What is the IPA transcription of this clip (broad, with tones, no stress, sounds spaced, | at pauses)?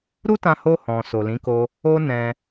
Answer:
ɾ u˦ t ã˧ h o˧ h ɔ̃˨ s o˨ l ĩ˨˦ k o˧ | o˦ n ɛ̃˧